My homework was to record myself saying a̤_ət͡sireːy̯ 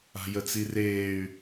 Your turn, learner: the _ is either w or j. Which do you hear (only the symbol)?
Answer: j